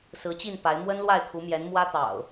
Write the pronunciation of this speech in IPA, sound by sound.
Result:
s ɹ̩˨˦ t͡ɕ i˥˨ n p a˨˦ ɪ̯ m w ə˦ n l w a˥˨ ɪ̯ kʰ u˨˦ m j ɛ˨˦ n m w ä˦ t̪ ɑ̰˨˩ ʊ̯

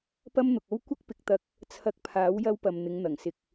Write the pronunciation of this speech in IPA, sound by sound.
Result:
p ɐ˥ m n̪ ʊ˨ k̚ o˥ w kʷ ɐ˥ k̚ p ɪ˨˥ k̚ t̪ ɐ˧ k̚ | t͡sʰ ɐ˧ k̚ pʰ aː˨˥ w j ɐ˥ w p ɐ˨ m n̪ ɪ˨˧ ŋ n̪ ɐ˨˩ ŋ s ɪ˨ k̚

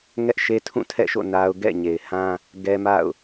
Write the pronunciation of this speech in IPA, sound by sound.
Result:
ŋ ɛ˦ ʔ ʃ e˦ tʰ ũ˦˨ tʰ ɛ̰˦˨ ʃ o̰˦˨ n a˦ ʊ̯ ɡ ɛ̰˦˨ ɲ e˨ ɪ̯ h ã˦ | ɡ ɛ˦ m a̰˦˨ ʊ̯

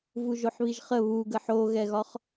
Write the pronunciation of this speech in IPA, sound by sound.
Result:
v u ʒ o ħ β i ʒ χ ə β u ɡ ə ħ o ɣ ɛ ɣ ɒ χ

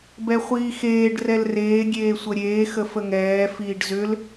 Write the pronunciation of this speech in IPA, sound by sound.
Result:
b ɛ χʷ iː x eː ɖ r ɛ l r eː ɡʲ eː sʷ ə ɾʲ eː x ə f ə ŋ ɛː f iː ɖ z ʏ l

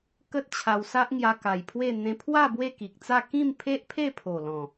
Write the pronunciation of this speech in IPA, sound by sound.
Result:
k ə˦ t̚ t͡ɕʰ a˧ w s a˦ ʔ ŋ j a˧ k a˨˩ j pʰ w e˥˧ n̪ ẽ˧ pʰ w a˥˧ b w e˥˧ k i˨ k̚ t͡s a˥˧ k ĩ˥˧ m pʰ e˦ ʔ pʰ e˥˧ pʰ o˨˩ l ɔ̃˨˩

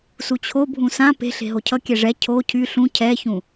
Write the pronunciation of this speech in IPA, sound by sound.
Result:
s u t͡ɕʰ o bʱ ũ s ã p e̤ ɬ e̤ ɦ o cʰ ʌ kʲ ɛ ʐ ɛ cʰ o cʰ y ɬ ũ cʰ ɛ ç ũ

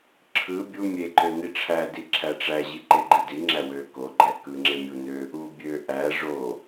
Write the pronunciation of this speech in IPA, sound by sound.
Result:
ǁʰ ɯ bʲ u mʲ e ǃ ø n i ʈ͡ʂʰ æ d i ǁʰ æ ʈ͡ʂ æ ʑ i ǃ e ɡ͡ǃ i d i ŋ͡ǁ æ w ø k o ɡ͡ǃ æ k ɯ ŋ͡ǁ e mʲ u n ø | u bʲ ø ʔ æ ʐ o

